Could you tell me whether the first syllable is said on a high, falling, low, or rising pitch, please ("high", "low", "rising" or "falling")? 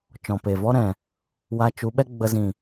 low